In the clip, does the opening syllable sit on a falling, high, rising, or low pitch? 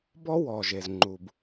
high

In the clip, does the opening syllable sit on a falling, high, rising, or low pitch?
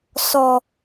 low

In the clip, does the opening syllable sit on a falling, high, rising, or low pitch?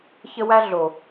high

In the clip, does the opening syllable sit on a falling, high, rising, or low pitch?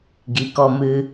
low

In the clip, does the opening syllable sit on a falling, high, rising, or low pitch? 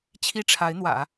high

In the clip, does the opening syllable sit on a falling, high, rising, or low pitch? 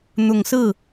low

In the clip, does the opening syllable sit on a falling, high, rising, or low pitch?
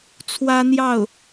high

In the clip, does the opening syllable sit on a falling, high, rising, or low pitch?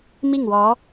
falling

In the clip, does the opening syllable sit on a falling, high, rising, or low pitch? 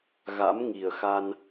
rising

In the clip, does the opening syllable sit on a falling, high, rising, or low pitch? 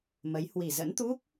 rising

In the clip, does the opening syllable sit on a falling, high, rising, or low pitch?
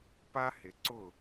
high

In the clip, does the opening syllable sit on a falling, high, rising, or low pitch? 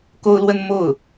high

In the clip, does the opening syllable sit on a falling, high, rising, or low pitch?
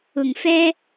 low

